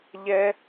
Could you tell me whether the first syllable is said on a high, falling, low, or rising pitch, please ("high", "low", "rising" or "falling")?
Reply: high